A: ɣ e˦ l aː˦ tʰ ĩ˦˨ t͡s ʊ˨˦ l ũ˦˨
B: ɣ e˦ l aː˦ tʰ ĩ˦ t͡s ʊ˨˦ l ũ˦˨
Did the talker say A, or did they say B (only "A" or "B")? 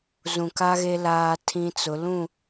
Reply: B